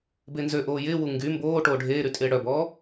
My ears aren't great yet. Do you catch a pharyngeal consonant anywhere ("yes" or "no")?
no